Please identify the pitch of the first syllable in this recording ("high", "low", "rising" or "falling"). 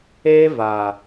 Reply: high